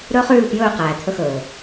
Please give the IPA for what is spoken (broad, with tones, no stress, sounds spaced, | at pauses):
ɾ ɵ˦ χ ʉː˦˨ p j ɵː˦˨ q æː˨ t̪ʰ ɵ˦ x ɵː˨